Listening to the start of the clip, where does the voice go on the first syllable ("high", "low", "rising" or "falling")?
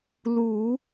low